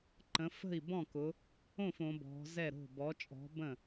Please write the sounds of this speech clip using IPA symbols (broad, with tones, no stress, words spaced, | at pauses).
ǃə̃˩˧fə̤˥˩i̯bɔ̃˥˩kʊ˩˧ | õ˥˩f õ˩˧bɔ̤˩˧zɛ˥˩ɾo̤˥˩ bɔ˩˧t͡ʃʼɔ̤˩˧ bə̃˥˩